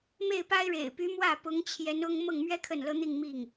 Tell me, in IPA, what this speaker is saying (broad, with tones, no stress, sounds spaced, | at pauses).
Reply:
m e˥˩ ɪ̯ p a˥ ɪ̯ ɻ ḛ˨˩ ɪ̯ p y˧˥ m w ä˥˩ p ʊ˧˥ ŋ t͡ɕʰ j ɛ˧˥ n ʊ˥ ŋ m ɤ˥˩ ŋ m ɥ ɛ˥ kʰ ə˥˩ n l ɤ˥ n̪ i˥˧ ŋ m i˥˩ ŋ